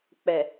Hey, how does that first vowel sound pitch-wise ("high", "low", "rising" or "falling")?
low